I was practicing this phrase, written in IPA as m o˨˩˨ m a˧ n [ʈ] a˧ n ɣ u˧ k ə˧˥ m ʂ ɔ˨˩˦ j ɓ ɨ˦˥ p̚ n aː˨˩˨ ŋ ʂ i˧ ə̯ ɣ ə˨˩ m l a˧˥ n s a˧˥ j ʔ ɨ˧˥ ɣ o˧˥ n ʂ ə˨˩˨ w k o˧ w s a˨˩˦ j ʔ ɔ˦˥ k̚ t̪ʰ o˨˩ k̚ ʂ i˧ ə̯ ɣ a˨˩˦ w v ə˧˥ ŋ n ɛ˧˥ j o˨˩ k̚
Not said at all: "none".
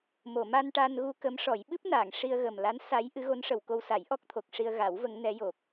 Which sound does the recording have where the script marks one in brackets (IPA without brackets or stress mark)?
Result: ʈ